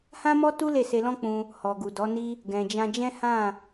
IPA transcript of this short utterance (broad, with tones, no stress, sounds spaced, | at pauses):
h ã˦ m ɔ˦ t u˦ l e˦˨ s e˧ l ɔ̃˦ k͡p ũ˧ | h ɔ˨ ɡ u˨ d ɔ˨˦ n i˦ | ɡ ɛ̃˨ d͡ʒ ã˧ d͡ʒ ɛ̃˦ h ã˦˨